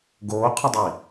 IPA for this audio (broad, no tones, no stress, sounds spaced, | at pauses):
ɡ oː qʰ ə dˤ i